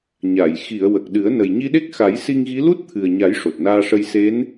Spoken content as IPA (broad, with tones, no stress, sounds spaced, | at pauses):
ɲ a˨˩˨ j x i˨˩˨ ə̯ w ə˨˩ k̚ ɗ ɨ˨˩˦ ə̯ n ə˨˩ j ɲ i˧ ɗ e˦˥ k̚ x a˨˩˦ j s i˧ ŋ ɣ i˧˥ l u˦˥ t̚ t̪ʰ ɨ˨˩ ə̯ ɲ a˨˩˦ j ʂ o˨˩ t̚ n aː˧ ʂ ə˧ j s e˧˥ n